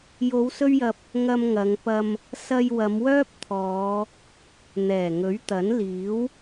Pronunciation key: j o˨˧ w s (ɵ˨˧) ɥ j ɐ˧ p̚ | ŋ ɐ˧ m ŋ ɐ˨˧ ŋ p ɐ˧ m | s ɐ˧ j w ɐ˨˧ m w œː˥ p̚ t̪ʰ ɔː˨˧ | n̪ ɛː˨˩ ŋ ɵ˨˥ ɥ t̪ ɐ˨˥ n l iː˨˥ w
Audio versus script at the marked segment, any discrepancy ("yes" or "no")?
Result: yes